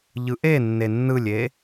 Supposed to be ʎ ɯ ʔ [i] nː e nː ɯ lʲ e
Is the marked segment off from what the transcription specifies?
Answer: yes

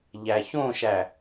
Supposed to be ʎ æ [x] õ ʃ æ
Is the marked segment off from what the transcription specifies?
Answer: yes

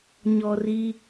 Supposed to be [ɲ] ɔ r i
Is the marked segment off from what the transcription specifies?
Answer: no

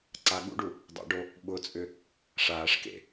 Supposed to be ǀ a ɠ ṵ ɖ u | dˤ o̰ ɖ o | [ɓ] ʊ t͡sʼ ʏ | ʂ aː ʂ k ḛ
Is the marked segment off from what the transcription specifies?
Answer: no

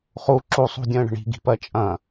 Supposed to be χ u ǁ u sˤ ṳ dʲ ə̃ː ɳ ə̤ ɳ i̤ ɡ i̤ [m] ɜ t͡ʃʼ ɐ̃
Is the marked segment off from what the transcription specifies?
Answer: yes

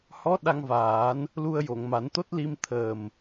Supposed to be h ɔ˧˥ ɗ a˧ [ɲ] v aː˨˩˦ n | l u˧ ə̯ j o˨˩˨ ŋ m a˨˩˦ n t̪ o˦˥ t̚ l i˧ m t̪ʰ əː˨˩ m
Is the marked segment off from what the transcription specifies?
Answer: yes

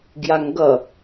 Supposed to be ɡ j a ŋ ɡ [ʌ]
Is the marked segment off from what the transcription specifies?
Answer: no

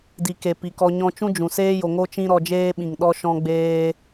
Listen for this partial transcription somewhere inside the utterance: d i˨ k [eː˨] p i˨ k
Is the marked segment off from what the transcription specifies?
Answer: yes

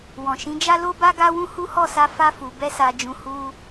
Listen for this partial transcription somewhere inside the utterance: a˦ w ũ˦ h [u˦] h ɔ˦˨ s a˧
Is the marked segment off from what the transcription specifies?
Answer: no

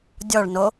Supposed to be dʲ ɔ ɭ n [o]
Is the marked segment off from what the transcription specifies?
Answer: no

